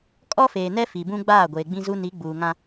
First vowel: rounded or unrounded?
rounded